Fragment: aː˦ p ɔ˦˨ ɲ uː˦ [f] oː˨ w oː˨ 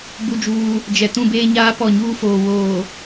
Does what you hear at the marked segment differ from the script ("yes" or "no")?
no